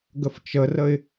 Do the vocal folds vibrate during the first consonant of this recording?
yes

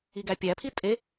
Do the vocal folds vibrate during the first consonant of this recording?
yes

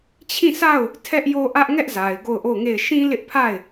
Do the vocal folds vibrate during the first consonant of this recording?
no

